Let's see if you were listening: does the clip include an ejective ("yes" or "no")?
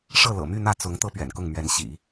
no